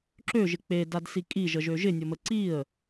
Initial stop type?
click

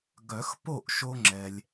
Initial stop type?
plain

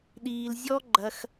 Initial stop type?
implosive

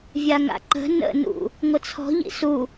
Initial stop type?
click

